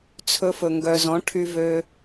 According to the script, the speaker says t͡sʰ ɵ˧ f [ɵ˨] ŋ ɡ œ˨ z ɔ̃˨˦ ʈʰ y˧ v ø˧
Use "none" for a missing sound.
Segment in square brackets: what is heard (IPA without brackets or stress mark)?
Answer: ɵ˨